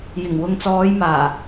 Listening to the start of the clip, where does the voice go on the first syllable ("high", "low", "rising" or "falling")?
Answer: low